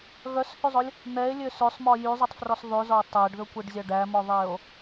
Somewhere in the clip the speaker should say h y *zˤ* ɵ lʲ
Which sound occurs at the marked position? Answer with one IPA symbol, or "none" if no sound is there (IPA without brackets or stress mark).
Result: zˤ